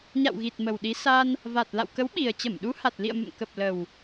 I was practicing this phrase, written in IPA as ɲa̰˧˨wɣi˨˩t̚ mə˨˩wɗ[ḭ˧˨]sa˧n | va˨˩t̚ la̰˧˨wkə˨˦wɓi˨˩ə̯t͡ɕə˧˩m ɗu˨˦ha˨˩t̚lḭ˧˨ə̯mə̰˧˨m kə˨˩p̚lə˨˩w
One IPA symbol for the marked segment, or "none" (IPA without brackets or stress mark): i˨˦